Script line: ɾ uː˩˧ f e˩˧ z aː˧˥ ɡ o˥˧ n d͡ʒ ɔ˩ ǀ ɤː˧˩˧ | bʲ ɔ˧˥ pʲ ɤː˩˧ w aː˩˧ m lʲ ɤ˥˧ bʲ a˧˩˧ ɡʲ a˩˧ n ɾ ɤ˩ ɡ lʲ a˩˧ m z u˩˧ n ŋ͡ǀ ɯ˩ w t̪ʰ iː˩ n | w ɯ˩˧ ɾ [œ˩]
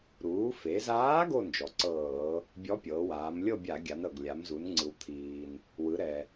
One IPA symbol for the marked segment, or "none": ɛ˩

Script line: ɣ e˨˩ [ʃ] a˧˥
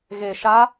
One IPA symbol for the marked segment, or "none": ʃ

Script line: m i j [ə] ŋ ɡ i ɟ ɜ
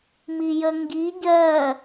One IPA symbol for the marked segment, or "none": ə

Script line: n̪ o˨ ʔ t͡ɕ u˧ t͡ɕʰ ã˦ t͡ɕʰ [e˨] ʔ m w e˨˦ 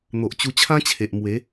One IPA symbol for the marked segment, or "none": e˨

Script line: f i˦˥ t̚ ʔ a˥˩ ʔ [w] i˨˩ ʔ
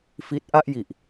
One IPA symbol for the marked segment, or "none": j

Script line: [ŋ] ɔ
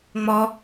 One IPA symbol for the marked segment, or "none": ŋ͡m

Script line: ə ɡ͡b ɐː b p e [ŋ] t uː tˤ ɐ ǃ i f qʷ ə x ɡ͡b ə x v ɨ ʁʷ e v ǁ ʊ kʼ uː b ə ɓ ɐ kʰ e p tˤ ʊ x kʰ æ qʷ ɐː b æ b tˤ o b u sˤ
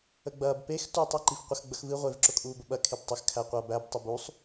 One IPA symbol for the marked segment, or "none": x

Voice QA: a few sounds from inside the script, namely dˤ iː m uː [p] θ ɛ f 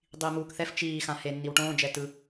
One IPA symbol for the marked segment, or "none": k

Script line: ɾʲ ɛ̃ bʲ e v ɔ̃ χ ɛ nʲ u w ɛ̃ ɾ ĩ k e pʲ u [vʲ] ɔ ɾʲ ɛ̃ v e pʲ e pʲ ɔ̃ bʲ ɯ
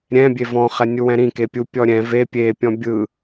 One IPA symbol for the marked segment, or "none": pʲ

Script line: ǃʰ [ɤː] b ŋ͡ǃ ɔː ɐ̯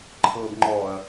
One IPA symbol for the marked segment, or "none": ɤː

